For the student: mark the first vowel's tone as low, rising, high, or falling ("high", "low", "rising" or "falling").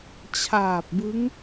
low